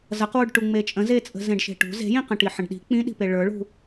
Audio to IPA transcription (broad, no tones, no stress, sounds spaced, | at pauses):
z ʌ q w u ɖ ʈ u ŋ͡m e t͡ʃʼ ə̃ z e t͡sʼ ə̤ z ẽ ɖ ʃ e̤ ʈ ṳ z e̤ j ĩ q ə̃ ʈ i ħ ə̃ ɖ ɗ i̤ k͡p ĩ ɗ i̤ p e ɭ ə˞ ɭ ṳ